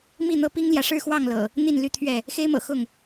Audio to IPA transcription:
m i˥˨ n̪ ɤ˦ p i˦ ŋ l j ä˨ ʂ ɻ̩˥˨ x w ɑ˥˨ ŋ l ɤ̰˨˩ | n̪ i˥˨ n l y˥˨ t̪ʰ ɥ ɛ˥˨ | x e˦ ɪ̯ m ɤ̰˨˩ x ʊ˥˨ ŋ

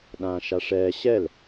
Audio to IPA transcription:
ɗ ãː ʃ a ʂ ɛː ɕ ɛ l

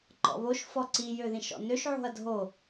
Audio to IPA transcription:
ǃ ɔ̰ β o ʃ f ɔ ǀ i j ø ð ĩ ʃ ɔ̰ n ø ʃ ʕ o̤ ɐ̯ dʱ o

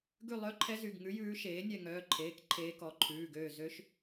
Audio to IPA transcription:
ɡ ʉ˦˨ lˠ œ˧˥ ǃʰ ɛ˧˥ z y˩˧˩ ɡ ŋ ʉ˧˥ j ʉː˧˥ ʃ eː˩˥ nʲ ɛ˦˨ ŋ œː˩˧˩ ǃʰ eː˩˧˩ k ǃʰ eː˧˥ k ɔ˩˧˩ ǃʰ ʉː˩˧˩ ɡ øː˦˨ z ø˧˥ ʃ

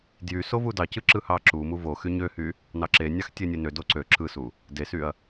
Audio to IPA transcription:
d j y s o v u d ɑ c ɯ ǁ ɯ h ɑ ǁ u m u v o x y ɲ ø h y | n ɑ ǁ e nʲ ɑ x tʲ e nʲ e n ø d o ǀ ø ǁ ɯ s u | d e s y ɐ̯

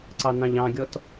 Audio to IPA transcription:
ǀ ɑ n ɑ̃ ʎ ɑ̃ ɡʲ ɔ t

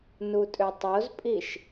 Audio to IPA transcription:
n u tʼ ø tˤ o z pʼ i ʃ

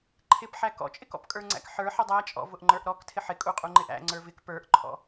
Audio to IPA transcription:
ǃʰ ɪ p ħ æ k ɔ̰ t͡ʃʼ ɪ k ɔ̰ p kʼ ə˞ ŋ͡ǀ æ̰ k ħ ə˞ ħ ɪ dˤ æ t͡ʃʼ ɔ̰ v ʊ ʔ ŋ͡ǃ ə˞ ʔ ɾ ɔ k tʰ ɪ ħ ɪ kʼ u qʼ u ŋ͡ǃ ɪ ʔ æ̰ ŋ͡ǀ ə˞ v ɪ k p ə˞ ʔ ǃʰ ɔ̰

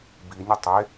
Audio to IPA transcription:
b i nʲ ɔ tˤ e

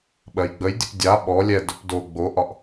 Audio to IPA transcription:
ɓ ɜ j ɡ͡b ə j dʲ ə p dʲ a ɓ ɔ lʲ ɛ d ɵ p d o ɡ͡b o ʔ ɒ ʔ

